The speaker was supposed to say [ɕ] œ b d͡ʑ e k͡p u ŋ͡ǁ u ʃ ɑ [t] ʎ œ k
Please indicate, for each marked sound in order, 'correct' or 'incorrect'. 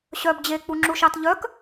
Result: correct, correct

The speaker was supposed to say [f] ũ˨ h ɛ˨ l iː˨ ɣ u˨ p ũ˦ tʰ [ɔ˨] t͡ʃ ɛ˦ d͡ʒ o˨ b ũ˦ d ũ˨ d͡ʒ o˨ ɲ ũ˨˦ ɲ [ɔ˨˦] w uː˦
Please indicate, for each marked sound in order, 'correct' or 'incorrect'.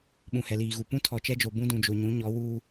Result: incorrect, correct, correct

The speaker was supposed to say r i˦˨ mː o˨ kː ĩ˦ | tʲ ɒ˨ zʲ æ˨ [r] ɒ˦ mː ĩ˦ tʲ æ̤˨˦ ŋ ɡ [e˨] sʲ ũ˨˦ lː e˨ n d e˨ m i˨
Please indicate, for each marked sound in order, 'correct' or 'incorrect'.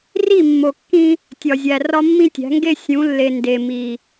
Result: correct, incorrect

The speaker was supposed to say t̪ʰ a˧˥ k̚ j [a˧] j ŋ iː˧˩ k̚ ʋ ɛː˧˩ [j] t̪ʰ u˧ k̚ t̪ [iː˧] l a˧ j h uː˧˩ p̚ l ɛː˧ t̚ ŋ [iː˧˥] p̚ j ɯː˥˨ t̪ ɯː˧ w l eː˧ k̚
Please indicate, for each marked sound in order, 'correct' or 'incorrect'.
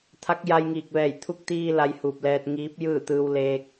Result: correct, correct, correct, correct

